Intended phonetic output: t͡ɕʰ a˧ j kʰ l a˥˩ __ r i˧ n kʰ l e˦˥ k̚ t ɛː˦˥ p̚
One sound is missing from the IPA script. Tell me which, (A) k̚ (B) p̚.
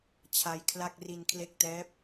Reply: A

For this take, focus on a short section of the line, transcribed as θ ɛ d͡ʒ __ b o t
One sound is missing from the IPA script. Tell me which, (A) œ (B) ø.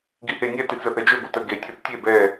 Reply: B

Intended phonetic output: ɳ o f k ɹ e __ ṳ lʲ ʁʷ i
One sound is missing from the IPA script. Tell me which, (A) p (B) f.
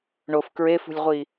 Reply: B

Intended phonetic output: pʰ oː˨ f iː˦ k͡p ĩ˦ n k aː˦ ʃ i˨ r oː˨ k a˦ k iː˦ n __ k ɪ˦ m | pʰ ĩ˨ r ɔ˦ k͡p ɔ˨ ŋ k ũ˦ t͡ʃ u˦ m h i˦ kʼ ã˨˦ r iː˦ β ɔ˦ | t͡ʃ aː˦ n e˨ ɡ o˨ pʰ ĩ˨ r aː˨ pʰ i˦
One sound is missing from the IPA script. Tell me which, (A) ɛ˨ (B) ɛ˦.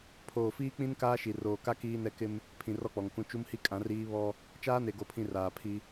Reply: B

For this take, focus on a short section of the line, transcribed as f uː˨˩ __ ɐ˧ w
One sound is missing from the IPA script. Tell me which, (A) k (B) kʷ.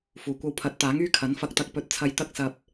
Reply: B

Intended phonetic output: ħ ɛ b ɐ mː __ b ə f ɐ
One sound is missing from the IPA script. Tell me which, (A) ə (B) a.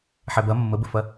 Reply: A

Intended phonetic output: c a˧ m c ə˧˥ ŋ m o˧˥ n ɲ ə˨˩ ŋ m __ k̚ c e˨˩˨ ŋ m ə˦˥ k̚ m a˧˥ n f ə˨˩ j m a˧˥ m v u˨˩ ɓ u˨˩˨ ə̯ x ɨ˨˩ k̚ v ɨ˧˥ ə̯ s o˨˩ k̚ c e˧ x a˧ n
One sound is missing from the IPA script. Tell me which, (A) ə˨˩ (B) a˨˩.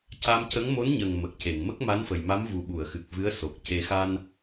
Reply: A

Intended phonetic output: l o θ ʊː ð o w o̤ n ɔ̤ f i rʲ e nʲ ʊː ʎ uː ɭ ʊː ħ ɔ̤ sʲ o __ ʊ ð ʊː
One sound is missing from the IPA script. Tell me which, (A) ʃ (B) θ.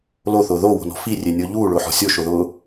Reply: A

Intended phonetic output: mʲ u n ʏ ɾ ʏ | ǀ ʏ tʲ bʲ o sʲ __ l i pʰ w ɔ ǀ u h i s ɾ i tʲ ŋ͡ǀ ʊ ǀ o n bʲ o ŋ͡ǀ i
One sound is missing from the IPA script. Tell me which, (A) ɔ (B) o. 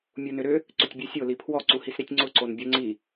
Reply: B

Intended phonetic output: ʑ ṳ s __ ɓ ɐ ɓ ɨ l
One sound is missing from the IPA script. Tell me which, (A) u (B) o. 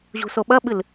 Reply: B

